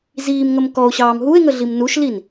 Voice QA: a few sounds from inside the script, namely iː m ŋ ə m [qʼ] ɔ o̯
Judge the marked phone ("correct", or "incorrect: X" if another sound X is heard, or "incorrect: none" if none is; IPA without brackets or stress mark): incorrect: k